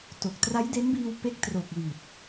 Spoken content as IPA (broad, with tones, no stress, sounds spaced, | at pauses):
t o˨˩ k̚ t r a˦˥ j d e˦˥ n b iː˧ w p e˦˥ k̚ t r o˨˩ k̚ w i˨˩ t̚